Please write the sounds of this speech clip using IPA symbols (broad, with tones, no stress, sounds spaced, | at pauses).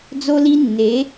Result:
d͡z o˦ l i˦ nː e˨˦